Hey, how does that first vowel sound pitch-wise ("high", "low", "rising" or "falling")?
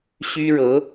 high